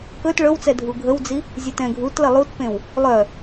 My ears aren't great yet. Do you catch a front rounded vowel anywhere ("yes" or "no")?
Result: yes